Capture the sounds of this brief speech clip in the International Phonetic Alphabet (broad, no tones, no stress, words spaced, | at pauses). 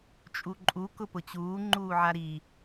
t͡ʃʼuǃʼu kʊpʊt͡ɕuː ŋ͡ǃuːʕaɾi